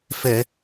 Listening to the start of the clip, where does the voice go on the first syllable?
low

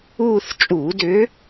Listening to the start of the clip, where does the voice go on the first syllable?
falling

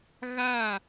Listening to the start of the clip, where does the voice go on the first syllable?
falling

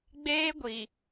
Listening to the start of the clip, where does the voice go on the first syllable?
high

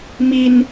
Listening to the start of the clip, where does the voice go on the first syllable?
high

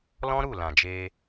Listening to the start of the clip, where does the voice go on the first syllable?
high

